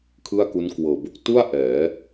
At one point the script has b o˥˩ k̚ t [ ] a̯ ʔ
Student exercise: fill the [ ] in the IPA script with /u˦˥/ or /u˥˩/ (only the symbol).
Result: u˥˩